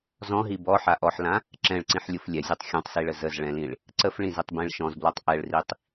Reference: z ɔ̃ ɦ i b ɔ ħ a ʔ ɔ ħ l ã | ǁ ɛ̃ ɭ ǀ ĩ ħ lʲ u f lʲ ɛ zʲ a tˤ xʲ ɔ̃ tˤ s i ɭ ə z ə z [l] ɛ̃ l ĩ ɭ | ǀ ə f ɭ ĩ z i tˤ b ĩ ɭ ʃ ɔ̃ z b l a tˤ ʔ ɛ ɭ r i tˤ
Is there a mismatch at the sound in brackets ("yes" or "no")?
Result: yes